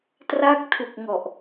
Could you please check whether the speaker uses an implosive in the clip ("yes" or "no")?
no